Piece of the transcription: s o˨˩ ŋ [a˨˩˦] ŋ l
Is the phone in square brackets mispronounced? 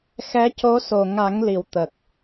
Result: no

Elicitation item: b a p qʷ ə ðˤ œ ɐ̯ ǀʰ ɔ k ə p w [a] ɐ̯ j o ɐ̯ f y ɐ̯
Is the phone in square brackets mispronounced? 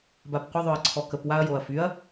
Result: no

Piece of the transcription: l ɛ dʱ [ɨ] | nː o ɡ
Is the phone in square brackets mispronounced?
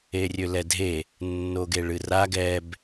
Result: yes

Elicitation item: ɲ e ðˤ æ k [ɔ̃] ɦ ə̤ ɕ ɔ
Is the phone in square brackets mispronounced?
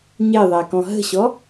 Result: no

